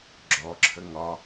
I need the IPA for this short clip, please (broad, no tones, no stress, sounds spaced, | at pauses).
ɡ͡ǁ ɔ ǁʰ ə ŋ ɒ